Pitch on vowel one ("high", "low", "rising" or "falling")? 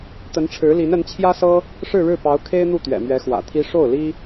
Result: rising